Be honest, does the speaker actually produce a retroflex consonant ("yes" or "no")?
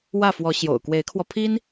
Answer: no